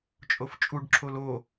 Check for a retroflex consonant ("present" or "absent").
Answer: present